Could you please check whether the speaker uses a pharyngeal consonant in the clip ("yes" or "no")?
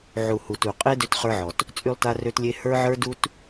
yes